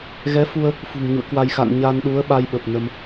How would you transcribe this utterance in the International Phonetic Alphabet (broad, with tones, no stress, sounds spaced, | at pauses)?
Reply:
ɣ ɛ˨˦ f u˧ ə̯ | f ṳ˨˩ ŋ ɲ ṵ˧˨ ə̯ k w a˧ j x a̰˧˨ n ɲ a˧ n ɗ u˨˦ ə̯ ɓ a˧ j ɓ ə˨˩ p̚ n ə˧ m